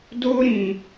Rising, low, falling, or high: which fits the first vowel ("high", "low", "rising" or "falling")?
high